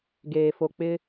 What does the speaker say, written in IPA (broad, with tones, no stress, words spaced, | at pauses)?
ɡeː˨ fo˨k͡pɪ˦